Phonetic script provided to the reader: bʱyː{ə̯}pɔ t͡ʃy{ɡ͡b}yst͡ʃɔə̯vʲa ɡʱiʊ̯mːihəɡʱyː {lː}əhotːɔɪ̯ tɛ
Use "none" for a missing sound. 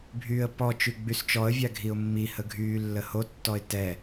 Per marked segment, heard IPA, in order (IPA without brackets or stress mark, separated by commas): ə̯, ɡ͡b, lː